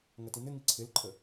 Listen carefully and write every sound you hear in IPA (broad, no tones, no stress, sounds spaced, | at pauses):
ŋ ɐ t i n̪ ɪ ŋ i ǀʰ ɪ l ǃʼ ə